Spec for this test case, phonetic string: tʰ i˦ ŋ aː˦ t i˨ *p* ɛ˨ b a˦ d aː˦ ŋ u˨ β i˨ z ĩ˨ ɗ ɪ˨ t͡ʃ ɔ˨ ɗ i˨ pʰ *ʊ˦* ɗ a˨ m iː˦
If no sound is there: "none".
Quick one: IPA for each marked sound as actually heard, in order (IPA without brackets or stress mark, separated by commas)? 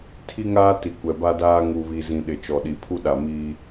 kʷ, u˦